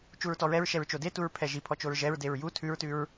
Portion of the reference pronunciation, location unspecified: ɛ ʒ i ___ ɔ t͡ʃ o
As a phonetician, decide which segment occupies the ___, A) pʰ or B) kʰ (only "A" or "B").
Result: A